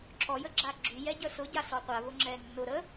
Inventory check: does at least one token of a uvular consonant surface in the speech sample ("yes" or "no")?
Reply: yes